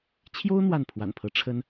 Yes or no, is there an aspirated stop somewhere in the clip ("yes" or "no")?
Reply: yes